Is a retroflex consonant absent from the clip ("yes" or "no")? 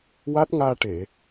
no